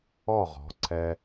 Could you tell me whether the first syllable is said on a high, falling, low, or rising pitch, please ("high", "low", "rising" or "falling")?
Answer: falling